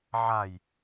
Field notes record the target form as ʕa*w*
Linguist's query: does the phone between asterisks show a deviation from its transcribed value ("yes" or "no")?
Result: yes